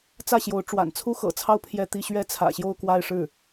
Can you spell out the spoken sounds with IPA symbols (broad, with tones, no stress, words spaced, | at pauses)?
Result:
t͡sä˥˩ɕjo˧˥ʊ̯ ʈ͡ʂwa̰˨˩nt͡sʰu˥xɤ̰˨˩t͡sʰɑ˥˧ʊ̯ pʰjɛ˥˧t̪i˥˧ ɕɥɛ˥˩t͡sʰä̰˨˩ɕjo˥˧ʊ̯ kwa˥˧ɪ̯ʂɻ̩˥˩